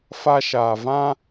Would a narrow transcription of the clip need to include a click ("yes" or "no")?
no